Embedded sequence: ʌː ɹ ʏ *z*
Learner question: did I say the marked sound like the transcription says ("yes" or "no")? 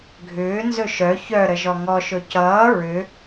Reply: no